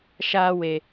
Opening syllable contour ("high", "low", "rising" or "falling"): high